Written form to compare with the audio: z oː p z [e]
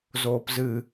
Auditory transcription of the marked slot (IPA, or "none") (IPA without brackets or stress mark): ɨ